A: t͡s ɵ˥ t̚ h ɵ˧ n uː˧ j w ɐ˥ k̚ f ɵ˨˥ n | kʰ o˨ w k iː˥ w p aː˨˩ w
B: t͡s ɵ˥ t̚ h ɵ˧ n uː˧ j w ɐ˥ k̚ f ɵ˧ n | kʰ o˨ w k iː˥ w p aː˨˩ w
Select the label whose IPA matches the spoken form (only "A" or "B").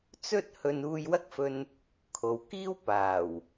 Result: B